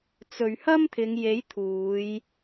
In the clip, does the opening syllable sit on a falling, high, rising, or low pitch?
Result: low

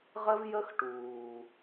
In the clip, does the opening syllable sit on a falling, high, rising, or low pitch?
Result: high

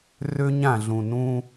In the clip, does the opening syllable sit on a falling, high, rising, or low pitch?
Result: high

